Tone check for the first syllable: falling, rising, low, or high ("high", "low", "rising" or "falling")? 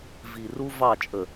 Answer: low